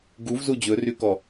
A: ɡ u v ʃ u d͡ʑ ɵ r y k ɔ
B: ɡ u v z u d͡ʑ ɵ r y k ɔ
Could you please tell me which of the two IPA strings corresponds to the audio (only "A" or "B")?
B